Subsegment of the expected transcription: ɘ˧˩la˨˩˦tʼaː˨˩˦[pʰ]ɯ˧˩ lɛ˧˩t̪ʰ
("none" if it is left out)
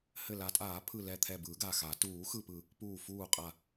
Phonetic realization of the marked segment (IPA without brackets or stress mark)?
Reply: pʰ